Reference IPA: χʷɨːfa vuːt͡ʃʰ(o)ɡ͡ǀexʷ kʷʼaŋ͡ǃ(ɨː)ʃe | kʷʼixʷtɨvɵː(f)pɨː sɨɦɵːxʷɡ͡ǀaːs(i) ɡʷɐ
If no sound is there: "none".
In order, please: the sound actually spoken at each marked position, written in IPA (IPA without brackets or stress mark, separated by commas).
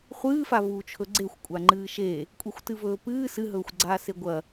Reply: ɵ, ɨː, none, e